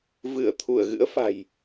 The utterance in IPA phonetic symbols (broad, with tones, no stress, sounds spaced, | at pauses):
v ɨ˧˩ ə̯ t̪ʰ u˧˩ ə̯ ɣ ɨ̰˧˥ ə̯ f a̤˨˩ j